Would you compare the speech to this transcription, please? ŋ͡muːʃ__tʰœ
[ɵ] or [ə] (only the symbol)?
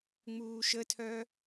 ə